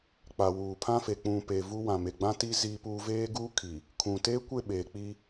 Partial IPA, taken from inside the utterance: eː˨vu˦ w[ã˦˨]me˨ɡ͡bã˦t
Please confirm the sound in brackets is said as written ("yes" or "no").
no